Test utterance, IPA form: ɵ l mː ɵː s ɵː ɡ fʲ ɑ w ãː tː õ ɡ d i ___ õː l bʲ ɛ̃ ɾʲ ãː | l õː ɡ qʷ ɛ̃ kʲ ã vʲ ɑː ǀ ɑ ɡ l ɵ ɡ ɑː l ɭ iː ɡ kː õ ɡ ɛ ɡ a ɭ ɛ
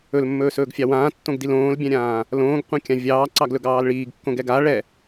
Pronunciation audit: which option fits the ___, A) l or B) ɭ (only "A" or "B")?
A